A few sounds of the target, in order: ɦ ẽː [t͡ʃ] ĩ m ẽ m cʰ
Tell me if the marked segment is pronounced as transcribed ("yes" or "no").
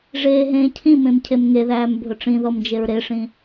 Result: no